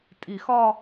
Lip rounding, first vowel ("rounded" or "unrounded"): unrounded